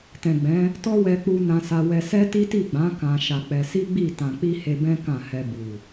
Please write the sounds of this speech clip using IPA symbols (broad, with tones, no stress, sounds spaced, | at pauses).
t ɛ̃˨ ɡ͡b ɛ̃˨˦ | t ɔ˦ w ɛ˧ k͡p u˧ n ã˧ s a˧ w ɛ˧ s ɛ˦ t i˦ t i˦˨ ɡ͡b ã˨˦ k ã˧ ʃ a˧ k͡p ɛ˧ s i˦ ɡ͡b i˦˨ t ã˨ k͡p i˧ h e˧ b ɛ̃˦ k ã˦˨ h ɛ˧ b u˨